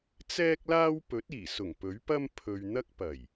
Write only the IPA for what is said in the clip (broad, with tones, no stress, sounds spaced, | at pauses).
t͡s ɛː˥ k̚ l aː˥ w p ɵ˨˥ t̚ iː˨˩ s ʊ˨˩ ŋ p ɵ˨˥ ɥ p ɐ˥ m pʰ ɵ˧ ɥ n̪ ɐ˥ k̚ p ɐ˨˩ j